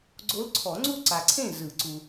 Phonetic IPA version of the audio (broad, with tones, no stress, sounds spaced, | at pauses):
ɡ͡ǀ o˧˥ l ǀʰ ɔ˨˩˦ ŋ͡ǀ u˥˨ ǀ a˨ ǀʰ ẽ˥˨ z ɯ˨˩˦ ǀ u˨